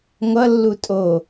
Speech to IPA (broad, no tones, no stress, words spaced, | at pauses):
ŋʷʌ lːutʼo